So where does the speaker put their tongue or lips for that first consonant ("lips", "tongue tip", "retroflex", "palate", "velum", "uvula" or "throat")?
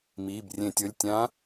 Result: lips